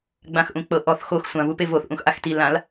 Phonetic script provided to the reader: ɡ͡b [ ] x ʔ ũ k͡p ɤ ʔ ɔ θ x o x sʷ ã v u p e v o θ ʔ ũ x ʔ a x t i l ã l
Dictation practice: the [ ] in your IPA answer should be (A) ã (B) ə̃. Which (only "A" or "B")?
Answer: A